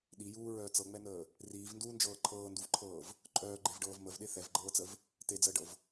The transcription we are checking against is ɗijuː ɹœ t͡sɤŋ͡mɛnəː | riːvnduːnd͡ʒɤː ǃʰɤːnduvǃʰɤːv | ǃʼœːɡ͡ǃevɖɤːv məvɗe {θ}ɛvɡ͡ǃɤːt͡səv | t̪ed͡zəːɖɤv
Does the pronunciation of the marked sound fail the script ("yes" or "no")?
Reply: no